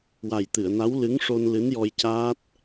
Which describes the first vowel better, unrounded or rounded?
unrounded